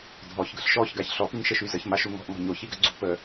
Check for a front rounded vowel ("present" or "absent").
present